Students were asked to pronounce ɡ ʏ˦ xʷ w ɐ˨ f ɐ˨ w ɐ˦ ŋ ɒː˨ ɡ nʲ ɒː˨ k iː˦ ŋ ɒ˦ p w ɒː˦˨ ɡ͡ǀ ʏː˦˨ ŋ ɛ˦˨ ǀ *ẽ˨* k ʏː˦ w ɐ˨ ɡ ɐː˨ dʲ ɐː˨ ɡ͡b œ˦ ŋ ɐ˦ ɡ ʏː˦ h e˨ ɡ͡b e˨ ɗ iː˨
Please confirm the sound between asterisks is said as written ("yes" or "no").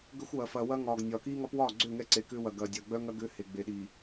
no